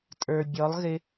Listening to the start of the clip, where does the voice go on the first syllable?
low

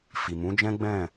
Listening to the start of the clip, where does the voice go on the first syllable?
low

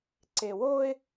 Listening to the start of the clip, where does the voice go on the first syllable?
low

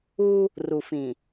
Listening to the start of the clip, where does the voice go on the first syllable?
high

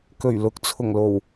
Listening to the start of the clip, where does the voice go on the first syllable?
low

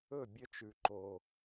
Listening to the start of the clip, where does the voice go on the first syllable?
falling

